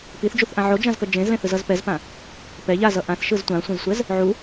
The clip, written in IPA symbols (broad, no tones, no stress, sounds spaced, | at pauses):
p i θ d͡ʒ u θ ʔ ã ʕ o d͡ʒ ã z k ʌ d͡ʒ ẽ z l ẽ θ ɯ z ʌ z p ɛ z p ã | p ɛ ʎ a z ʌ ʔ ã θ ʃ ɯ z tʷ ã sʷ ẽ z sʷ ɛ z | ʕ u